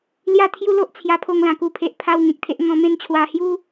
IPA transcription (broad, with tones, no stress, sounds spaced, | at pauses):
l j a˥˧ t̪ʰ j u˦ l o˦ ʔ t͡sʰ j a˧ pʰ o˧ ŋ l ã˨˩ k u˨˩ pʰ e˨ ʔ pʰ a˧ w ŋ ẽ˨ k̚ t̪ʰ e˨ ʔ ŋ ɔ̃˧ m ẽ˥˧ n t͡ɕʰ w a˧ h j u˦